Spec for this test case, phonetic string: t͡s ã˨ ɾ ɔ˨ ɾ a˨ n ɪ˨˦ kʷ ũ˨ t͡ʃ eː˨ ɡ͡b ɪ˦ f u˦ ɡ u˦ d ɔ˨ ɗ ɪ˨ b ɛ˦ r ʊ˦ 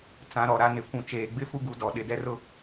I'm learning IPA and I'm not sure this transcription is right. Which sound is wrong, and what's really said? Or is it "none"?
b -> d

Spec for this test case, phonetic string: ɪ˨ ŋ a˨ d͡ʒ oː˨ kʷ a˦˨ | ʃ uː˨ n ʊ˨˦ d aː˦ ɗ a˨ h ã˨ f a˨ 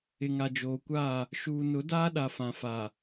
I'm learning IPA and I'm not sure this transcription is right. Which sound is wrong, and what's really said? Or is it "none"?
h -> f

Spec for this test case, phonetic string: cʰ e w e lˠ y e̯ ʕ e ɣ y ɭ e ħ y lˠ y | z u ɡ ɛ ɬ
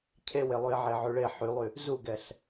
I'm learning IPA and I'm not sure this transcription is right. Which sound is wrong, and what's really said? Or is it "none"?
ɣ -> ʕ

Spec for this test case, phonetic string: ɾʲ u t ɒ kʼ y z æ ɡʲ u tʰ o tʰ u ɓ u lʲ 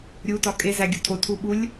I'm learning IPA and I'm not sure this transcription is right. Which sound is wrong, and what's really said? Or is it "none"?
y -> e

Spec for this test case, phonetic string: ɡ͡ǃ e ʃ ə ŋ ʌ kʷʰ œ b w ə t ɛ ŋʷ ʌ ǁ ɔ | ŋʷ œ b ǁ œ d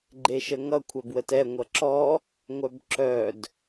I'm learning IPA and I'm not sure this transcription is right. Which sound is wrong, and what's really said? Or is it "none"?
none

